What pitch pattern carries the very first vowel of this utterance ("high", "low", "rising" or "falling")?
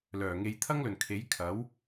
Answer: low